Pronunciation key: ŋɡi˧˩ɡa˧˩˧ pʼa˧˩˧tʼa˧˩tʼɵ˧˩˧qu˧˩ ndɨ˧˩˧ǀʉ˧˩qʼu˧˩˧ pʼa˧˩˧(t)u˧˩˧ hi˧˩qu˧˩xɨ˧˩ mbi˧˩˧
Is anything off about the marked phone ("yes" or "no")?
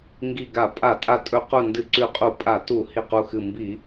no